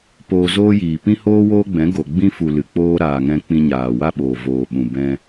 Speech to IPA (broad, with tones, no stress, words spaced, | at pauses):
poː˧zoː˦jiː˨ pĩ˦hoː˦woː˦ɡ͡bɛ̃˨˦ ɡo˨ɡ͡bĩ˦ fu˨ lɨ˨k͡poː˦ ɾaː˨ŋɛ̃˧ k͡pĩ˧ɲaː˨wa˦ɓoː˨ voː˨ɓũ˨ bɛ̃˧